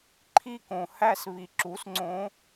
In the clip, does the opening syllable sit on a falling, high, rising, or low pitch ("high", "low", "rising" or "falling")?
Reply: falling